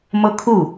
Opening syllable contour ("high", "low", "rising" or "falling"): high